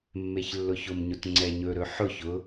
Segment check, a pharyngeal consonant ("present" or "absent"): present